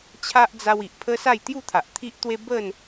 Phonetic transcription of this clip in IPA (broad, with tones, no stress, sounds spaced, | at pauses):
t͡ɕʰ a˦ ʔ d͡z a˧ w i˨ ʔ pʰ ə˦ s a˥˧ j t̪ j u˥˧ t̪ʰ a˨ ʔ t̪ʰ i˦ ʔ t̪ w e˦ b ə˥˧ n